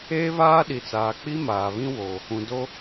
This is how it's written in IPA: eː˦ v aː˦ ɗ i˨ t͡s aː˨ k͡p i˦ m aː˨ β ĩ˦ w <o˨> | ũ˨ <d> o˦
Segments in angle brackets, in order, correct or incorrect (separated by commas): correct, correct